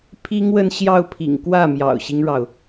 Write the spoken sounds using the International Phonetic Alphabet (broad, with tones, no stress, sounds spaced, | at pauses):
pʰ i˥ ŋ w ə˥˧ n ɕ j ɑ˥˩ ʊ̯ pʰ ḭ˨˩ ŋ k w ä˥˩ m j ɑ̰˨˩ ʊ̯ ɕ i˦ ŋ ɻ ɑ˩ ʊ̯